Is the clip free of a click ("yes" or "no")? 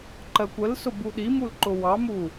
no